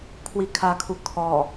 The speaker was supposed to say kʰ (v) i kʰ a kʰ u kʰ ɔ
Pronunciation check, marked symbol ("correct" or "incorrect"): incorrect